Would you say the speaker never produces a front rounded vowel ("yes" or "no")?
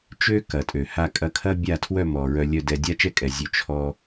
no